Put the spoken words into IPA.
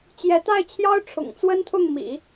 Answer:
t͡ɕ j ɛ˧˥ t̪ a˥˩ ɪ̯ t͡ɕʰ j ɑ˥ ʊ̯ ʈ͡ʂʰ ʊ̰˨˩ ŋ t͡s w ə˥ n t̪ʰ ʊ˥˩ ŋ m ḭ˨˩˦

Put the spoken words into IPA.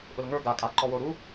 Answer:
ʔ ʊ l ŋ ə˞ ɡ a kʼ a ǃ ɔ w o ɾ u

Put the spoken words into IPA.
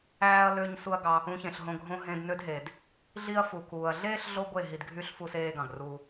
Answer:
æː˦ ɐ̯ l ø˦ ɲ s u˦ ɐ̯ ɡ ɑ˧ | ũ˧ ç ẽ˨ ɬ ɦ õ˧ ɡʱ õ˦ ɦ ẽ˧ d n ø˦ d ɦ e˨ d | ɮ i˦ ɐ̯ f u˨ k uː˨ ɐ̯ ɮ eː˦ ɬ ɮ o˦ ɡʷ e˦˨ ɦ i˧ d ɡʱ y˦ ɬ f u˦ s eː˦ ɡ ɑ̃˨ ɡ r uː˦

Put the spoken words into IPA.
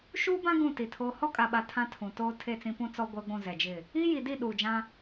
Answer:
ʃ uː˦ b ã˦ ɡ ũ˦˨ t i˨ tʰ oː˦ h ɔ˦ kʼ a˨ ɓ a˨ tʰ ã˦ tʰ ũ˨ t oː˦ tʰ e˦˨ t͡s ĩ˦ p ũ˦ t͡s ɔ˦ ɡʷ ɛ˦ ɡʷ ũ˦˨ z ɛ˨ d͡ʒ ɪ˦˨ | i˦ j i˨ d i˦˨ ɗ uː˨ d͡ʒ ã˦

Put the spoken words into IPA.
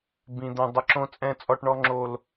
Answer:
b ĩ˨ d̪ ɛ̃˨ dˤ ɪ˨ ǁ õ˨ t͡sʼ ɛ̃˨ t͡sʼ ɔ˨ ʈ ɳ ɔ˦ ŋ͡ǁ o˦ l

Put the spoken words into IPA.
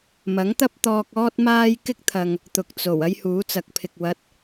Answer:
m ɐ˨˥ ŋ t̪ ɐ˥ p̚ t̪ ɔː˧ k̚ ɔː˥ t̚ m aː˥ j k ɪ˥ k̚ t̪ʰ ɐ˨ ŋ | t̪ ʊ˨ k̚ t͡s o˨˩ w ɐ˥ j h uː˨˥ t͡s ɐ˨˥ k̚ pʰ ɪ˨ k̚ w ɐ˨˥ t̚

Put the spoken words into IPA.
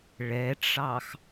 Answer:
ɭ ɛ ʈ͡ʂ ɑ x

